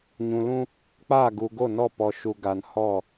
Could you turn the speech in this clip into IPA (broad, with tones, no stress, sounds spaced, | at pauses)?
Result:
ɲ ũ˨ l ũ˦ | k͡p aː˦˨ ɡ u˨ ɡ o˦˨ n ɔ˦˨ p ɔ˨ ʃ u˨ ɡ a˨ n h ɔ˦˨